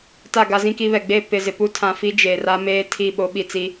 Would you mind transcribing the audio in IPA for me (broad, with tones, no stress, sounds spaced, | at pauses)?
t a˦˨ ɡ a˦ z ĩ˦ k i˦ β ɛ˨ ɡ͡b e˦˨ p ɪ˦˨ z ɪ˨ p u˦ tʰ ã˨ f i˦ d͡ʒ e˨ r a˦ m eː˦ tʰ i˦˨ ɓ o˨˦ ɓ i˨ t͡s i˦